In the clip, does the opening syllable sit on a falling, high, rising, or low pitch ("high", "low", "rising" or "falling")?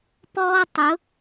high